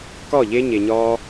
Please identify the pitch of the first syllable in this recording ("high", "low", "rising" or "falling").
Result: falling